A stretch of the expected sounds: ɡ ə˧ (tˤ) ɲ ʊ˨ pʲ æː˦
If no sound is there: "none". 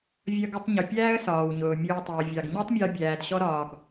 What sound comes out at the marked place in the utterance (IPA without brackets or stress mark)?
tˤ